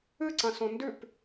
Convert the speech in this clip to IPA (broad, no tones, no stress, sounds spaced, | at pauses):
ɨ ǀ ɐ̃ s õ n d ʉ p